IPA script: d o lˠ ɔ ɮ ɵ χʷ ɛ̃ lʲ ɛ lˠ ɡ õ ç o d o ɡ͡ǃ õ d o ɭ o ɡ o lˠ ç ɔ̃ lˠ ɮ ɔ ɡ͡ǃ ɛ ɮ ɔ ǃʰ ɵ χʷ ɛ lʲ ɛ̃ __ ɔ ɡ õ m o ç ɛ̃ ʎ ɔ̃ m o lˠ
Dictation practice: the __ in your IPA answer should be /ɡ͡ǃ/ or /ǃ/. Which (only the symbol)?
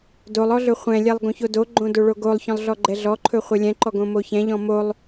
ǃ